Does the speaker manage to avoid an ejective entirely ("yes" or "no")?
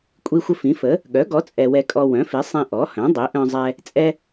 no